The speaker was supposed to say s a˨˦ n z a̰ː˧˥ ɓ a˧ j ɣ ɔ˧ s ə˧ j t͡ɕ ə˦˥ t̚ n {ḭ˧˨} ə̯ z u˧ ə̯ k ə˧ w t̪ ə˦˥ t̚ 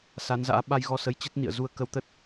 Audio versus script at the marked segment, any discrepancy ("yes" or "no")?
no